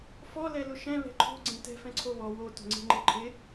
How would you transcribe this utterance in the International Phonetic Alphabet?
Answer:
f ɔ l ɛ l ʊ ʃ ɛ̃ β ɛ̤ ǃʰ o̤ ɡ͡ǀ ẽ t ɛ̤ f ɛ̃ ǀʰ o β ɔ w o t o̤ ŋ͡ǀ e̤ ŋ͡ǃ e ǃʰ ɪ

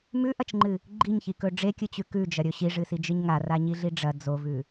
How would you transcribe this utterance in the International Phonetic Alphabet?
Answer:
m ʉ ʔ ɐ t͡ʃ ŋ͡ǃ ɨ | ɡ͡ǃ i ɲ ç i k ɵ ɖ͡ʐ e kʲ ɨ t͡ɕ ʉ k ʉ d͡ʒ ɐ ɾʲ ɵ ɕ i ʐ ɨ s i d͡ʒ ɨ ɲ ŋ a r a ɲ i ɮ i ɖ͡ʐ ɐ d͡z o v ʉ

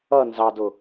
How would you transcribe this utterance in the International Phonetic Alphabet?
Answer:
ʌ n z ɑ d ʊ

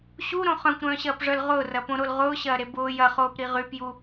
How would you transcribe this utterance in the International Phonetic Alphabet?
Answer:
ɕ u ɾ õ χ œ̃ kʷ ɾ œ̃ː ɕ ɐː p ʐ œ l ʁ ʊː r ɐ p õ ɾ o l ʁ ʊː ɕ ɐː ɾ e b ʊː j ɐ χ oː p ɾ i ʁ y p j u

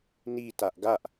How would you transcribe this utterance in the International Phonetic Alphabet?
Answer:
n i t a ʔ ɡ a ʔ

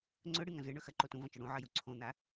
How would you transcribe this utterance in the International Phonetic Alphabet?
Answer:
ŋ͡ǀ ɵ ɽ ɨ ŋ ɐ̃ z ɨ ɳ ɵ x ɐ ǃ o t ũ v ɐ̃ t͡ʃ ɵ ɽ ũ ʕ ɐ j u ǀʰ õ n̪ a

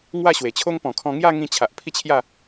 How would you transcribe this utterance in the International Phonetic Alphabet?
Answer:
ŋ w a˥˧ ɕ w e˨˩ t͡ɕʰ o˦ ŋ p ɔ̃˨˩ kʰ ɔ̃˧ ŋ j a˥˧ ŋ ĩ˧ t͡ɕʰ a˨ ʔ pʰ i˥˧ t͡ɕʰ j a˥˧

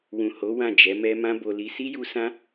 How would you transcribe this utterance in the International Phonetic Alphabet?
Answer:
w ũ˨ h o˨˦ w ã˦˨ d͡ʒ ɛ˨˦ m ɛ˦ m ã˦ b o˧ l i˧ s i˦ j u˧ s ã˦

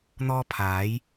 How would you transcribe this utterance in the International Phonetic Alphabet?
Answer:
n̪ ɔː˥ pʰ aː˨˥ j

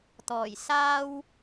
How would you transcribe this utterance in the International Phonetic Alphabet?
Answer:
t̪ ɔː˨˩ j s aː˥ w

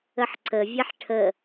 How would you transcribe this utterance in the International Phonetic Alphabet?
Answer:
ə ħ ǀ ə vʲ ɛ ħ ʈʰ ə

